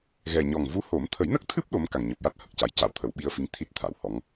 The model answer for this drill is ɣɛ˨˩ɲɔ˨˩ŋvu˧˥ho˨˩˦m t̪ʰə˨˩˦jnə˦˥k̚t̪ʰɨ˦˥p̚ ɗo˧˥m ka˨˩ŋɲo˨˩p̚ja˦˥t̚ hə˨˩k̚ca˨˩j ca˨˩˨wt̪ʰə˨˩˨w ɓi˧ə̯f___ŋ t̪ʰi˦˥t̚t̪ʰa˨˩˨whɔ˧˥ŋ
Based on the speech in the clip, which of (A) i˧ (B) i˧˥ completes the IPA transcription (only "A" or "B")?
B